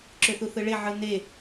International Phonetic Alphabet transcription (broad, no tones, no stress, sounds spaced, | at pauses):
ǁ ø θ u θ ɯ ɭ e ʕ ɯ n e